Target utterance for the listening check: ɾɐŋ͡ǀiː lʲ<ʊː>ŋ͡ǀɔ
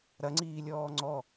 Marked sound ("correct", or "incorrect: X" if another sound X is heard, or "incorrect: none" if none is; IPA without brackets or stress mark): incorrect: ɔː